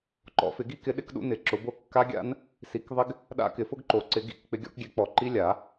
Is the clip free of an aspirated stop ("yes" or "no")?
yes